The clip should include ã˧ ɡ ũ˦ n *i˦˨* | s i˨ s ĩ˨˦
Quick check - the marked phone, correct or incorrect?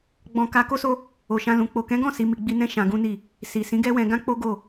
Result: correct